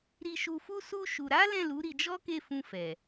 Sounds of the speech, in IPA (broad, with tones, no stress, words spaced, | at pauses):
ɾi˧ʃu˧fu˦ su˦ ʃu˧ ɾa˦lɛ̃˦˨lu˨˦ ɾi˧d͡ʒɔ˦ke˦˨fũ˧ fɛ˨